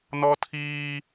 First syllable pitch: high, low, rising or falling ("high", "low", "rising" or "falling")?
high